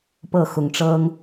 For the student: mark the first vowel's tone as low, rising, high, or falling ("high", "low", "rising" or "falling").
falling